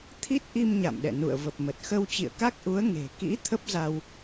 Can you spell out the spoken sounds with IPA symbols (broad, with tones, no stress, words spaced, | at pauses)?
t̪ʰi˦˥t̚ʔi˧m ɲa̰˧˨mɗɛ̰˧˨ nṵ˧˨ə̯və˨˩p̚mə˨˩t̚ xə˧wt͡ɕḭ˧˨ə̯ka˦˥k̚ʔu˨˦ə̯ ŋe̤˨˩ kḭ˧˥ t̪ʰə˦˥p̚za˧w